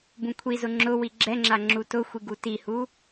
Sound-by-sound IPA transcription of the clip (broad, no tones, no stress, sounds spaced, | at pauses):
b ũ kʷʰ i z ʊ ŋ͡ǁ ʊ w i ɡ͡ǁ ɛ ŋ͡ǁ a ŋ͡ǁ u t ʊ xʷ i ɡ u t i h u